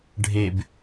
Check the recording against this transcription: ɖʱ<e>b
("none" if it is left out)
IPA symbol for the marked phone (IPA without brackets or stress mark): e